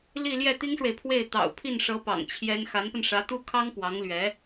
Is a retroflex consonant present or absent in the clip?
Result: present